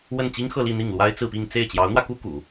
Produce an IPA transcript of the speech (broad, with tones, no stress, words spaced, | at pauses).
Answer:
wə˥˩nt͡ɕi˥ŋxɤ˥˧li˥˧ n̪i˥˩ŋlwa˥ɪ̯t͡sɹ̩˥˧pi˥˧ŋ t͡se˥˩ɪ̯t͡ɕjɑ˧˥ʊ̯n̪wä˧ku˥ kṵ˨˩˦